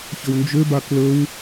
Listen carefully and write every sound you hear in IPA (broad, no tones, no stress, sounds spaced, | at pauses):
ç ə w n d͡ʒ ø b a k l ə w